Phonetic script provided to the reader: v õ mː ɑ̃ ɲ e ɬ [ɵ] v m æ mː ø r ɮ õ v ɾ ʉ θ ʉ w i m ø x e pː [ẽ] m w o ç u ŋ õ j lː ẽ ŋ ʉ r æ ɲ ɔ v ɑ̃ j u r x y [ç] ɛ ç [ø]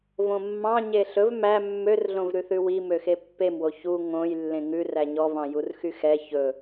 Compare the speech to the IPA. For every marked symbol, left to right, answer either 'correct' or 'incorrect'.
correct, incorrect: e, incorrect: x, incorrect: ɵ

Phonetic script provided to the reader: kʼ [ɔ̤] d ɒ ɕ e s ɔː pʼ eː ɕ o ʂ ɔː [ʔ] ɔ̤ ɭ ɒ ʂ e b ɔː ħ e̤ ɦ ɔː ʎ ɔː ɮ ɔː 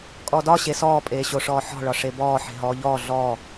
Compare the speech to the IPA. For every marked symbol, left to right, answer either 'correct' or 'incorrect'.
incorrect: ɔ, incorrect: ħ

